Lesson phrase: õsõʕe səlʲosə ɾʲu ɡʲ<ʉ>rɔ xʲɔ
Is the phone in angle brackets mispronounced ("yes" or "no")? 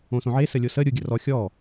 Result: yes